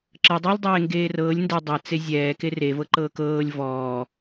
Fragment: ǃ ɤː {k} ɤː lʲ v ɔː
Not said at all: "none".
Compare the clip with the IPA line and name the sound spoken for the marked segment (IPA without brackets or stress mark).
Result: k